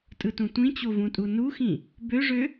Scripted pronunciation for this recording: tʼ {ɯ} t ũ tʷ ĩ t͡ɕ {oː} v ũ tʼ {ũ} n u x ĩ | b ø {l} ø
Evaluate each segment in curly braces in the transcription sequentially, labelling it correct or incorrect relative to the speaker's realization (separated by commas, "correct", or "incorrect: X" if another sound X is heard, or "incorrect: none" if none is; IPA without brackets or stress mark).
correct, incorrect: o, incorrect: u, incorrect: ʐ